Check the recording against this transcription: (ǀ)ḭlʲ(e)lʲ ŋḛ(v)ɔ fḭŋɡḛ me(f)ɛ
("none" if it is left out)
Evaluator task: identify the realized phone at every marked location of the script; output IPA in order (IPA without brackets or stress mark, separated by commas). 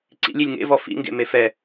ǀ, i, v, f